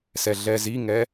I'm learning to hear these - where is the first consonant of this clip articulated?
tongue tip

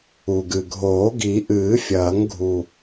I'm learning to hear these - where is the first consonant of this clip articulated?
velum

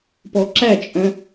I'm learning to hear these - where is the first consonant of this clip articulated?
lips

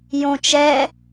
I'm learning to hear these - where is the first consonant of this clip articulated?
palate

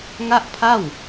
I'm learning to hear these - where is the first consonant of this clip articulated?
velum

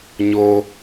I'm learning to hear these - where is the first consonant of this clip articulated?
palate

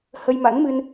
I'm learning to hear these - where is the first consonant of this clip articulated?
throat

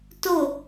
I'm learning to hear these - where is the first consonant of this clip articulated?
tongue tip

